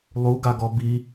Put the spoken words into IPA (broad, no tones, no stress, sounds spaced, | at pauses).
lˠ u ɡ a ɡ ɔ b i